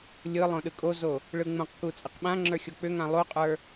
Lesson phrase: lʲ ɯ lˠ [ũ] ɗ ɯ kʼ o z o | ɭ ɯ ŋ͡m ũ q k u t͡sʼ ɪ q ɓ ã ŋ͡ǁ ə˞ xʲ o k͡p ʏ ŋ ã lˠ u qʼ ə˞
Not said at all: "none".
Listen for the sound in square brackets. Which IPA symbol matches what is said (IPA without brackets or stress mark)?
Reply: õ